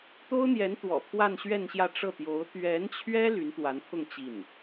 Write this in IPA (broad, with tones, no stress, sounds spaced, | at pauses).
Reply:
t̪ o˥ ʊ̯ n̪ j ɛ˧˥ n t̪ w ɔ̰˨˩ pʰ w a˥˧ n ɕ ɥ ɛ˥˧ n ɕ j ä˥˧ ʈ͡ʂ ɤ˥˩ t̪ j o˧˥ ʊ̯ t̪ ɥ ɛ˧˥ n t͡ɕʰ ɥ ɛ˥ l y˧˥ n t̪ w a˧˥ n pʰ ʊ˥˧ ŋ t͡ɕ i˥˩ n